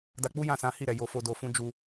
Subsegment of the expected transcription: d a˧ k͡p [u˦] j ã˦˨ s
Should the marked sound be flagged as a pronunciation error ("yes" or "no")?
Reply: no